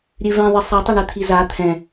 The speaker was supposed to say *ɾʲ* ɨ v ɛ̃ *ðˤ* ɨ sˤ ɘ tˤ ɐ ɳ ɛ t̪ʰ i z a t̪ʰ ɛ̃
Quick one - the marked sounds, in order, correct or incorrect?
correct, correct

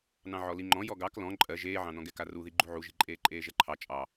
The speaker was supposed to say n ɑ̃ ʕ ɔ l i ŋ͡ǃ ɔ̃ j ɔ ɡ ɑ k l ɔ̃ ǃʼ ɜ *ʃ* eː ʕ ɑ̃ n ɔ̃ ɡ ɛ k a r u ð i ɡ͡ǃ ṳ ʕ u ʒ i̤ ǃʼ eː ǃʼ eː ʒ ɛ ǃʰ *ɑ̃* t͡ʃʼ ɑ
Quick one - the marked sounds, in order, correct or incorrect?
incorrect: ʒ, incorrect: ɑ

